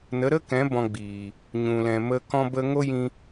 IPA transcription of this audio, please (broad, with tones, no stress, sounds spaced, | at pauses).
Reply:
n ə˨˦ ɾ ə˦ k ɛ̃˨˦ b ɔ̃˧ ɡ͡b iː˨ | ɲ ũ˨ l ɛ̃˨ m ə˧ k ɔ̃˦ b ə˦ ŋ o˦ j ĩ˧